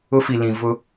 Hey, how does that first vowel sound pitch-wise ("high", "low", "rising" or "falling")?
high